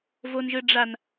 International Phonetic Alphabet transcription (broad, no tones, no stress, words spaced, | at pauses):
vonʒɯɖ͡ʐan